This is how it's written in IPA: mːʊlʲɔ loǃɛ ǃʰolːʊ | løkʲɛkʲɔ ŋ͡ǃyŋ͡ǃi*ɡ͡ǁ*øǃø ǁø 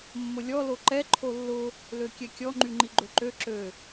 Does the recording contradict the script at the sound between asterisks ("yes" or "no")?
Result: yes